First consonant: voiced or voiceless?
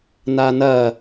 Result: voiced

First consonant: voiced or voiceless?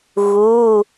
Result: voiced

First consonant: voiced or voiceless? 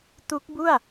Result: voiceless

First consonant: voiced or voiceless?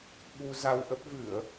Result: voiced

